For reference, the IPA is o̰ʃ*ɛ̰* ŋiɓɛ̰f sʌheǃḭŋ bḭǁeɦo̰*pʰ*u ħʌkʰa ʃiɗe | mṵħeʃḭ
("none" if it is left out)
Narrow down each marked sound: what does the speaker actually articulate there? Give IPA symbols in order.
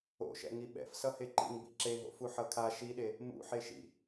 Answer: ɛ̰, f

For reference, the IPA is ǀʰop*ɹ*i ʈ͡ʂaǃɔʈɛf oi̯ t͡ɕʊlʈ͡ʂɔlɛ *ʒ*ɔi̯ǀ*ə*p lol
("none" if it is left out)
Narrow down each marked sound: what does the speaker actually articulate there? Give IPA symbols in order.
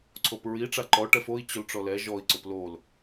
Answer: ɹ, ʒ, ʊ

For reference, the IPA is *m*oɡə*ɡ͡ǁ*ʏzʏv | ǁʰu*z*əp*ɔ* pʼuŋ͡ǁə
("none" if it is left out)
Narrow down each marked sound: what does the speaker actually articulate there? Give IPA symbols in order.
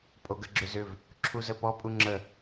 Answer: pʼ, ɡ͡ǁ, z, ɔ

